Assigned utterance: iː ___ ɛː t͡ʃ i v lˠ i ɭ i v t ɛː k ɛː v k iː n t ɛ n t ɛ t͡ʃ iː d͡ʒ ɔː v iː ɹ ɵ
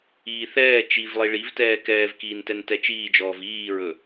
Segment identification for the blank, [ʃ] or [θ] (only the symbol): θ